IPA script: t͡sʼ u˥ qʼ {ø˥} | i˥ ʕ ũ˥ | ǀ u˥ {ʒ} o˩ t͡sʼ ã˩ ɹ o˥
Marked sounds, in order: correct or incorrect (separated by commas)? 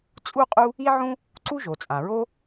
incorrect, correct